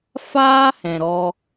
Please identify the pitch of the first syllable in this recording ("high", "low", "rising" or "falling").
high